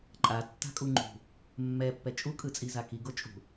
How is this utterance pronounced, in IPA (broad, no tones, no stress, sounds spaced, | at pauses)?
ǃʼ a tː a̤ kʼ u ŋ͡ǃ ṳ | mː ɛ pː ɛ t͡ʃʼ u kʼ ɯ t͡sʼ i z a k i ɡ o t͡ʃʼ ṳ